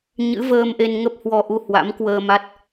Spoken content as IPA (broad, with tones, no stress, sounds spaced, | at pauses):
ɲ ɨ̰˧˥ v əː˧ m ʔ e˧ n ŋ ə˦˥ p̚ h w ɔ˧ ʔ u˧ h w a̰˧˥ m k w əː˧ m a˦˥ t̚